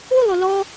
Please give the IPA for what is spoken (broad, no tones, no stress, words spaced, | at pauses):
ulˠ olɔ